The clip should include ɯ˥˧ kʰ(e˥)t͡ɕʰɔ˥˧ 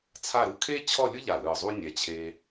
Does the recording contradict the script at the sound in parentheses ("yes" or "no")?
no